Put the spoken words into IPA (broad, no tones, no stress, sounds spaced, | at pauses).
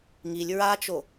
ŋ i lʲ ɹ a t͡ʃ o